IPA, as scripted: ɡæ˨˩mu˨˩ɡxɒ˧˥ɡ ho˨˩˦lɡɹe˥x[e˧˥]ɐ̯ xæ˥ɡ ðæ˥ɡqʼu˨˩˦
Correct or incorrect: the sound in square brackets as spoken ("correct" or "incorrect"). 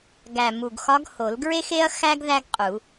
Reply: incorrect